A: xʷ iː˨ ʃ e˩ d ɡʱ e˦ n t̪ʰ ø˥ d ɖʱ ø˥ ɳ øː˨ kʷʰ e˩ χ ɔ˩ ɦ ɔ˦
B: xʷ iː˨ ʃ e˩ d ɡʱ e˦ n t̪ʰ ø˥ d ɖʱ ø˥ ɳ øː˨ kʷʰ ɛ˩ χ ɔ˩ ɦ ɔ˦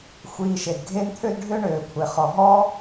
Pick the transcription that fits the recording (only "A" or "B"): A